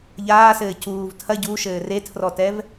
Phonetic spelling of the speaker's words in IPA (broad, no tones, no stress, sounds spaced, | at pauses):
ʎ aː s ɘː c uː v tʰ ɐ ɟ u ʃ ɘː r e tʰ r ɔ t ɛ v